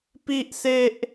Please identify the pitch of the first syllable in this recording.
high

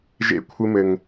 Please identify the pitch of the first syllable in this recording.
high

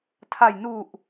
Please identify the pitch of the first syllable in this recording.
low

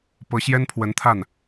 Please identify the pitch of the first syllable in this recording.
rising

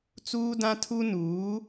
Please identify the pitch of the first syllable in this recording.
high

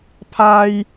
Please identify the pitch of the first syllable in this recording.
high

